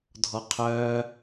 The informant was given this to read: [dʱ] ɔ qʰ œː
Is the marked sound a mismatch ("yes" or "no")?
no